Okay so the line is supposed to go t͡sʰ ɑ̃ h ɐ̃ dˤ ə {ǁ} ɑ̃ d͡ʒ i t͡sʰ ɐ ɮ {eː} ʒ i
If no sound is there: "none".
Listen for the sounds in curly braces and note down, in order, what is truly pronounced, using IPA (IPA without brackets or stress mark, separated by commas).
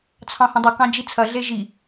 k, e